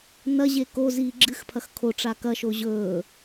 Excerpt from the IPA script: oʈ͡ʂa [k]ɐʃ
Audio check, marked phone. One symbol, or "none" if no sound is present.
k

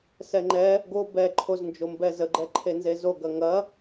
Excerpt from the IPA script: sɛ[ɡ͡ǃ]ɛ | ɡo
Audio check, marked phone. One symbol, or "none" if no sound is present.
ŋ͡ǃ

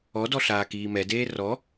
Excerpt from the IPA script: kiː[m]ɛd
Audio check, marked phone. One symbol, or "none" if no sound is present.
m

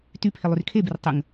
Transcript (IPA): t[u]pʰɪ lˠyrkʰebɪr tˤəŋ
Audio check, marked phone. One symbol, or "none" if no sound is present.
y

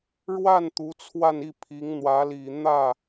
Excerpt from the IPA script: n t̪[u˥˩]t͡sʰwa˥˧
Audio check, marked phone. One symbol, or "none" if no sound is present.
u˧˥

